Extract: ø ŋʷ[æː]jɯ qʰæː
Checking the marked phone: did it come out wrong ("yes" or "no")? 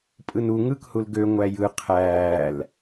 yes